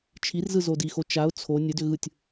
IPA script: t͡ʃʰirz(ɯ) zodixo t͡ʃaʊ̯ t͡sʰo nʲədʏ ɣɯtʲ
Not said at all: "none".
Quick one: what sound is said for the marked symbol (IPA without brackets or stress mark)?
ɯ